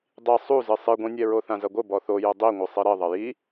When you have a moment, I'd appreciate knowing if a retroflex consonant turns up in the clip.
no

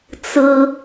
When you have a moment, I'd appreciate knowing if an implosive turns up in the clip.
no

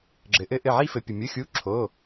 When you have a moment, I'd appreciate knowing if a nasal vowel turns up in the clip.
no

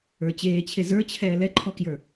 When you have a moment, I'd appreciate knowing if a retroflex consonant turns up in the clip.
no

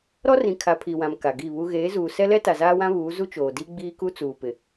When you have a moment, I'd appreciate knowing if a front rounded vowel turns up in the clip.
no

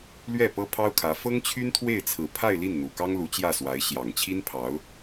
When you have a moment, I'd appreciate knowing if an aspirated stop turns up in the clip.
yes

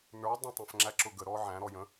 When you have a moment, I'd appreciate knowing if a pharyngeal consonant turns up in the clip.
yes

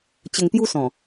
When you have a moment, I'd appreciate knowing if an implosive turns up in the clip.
no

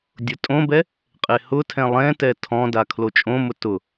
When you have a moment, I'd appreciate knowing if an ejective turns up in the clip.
yes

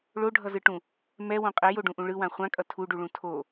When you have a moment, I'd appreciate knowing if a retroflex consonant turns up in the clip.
yes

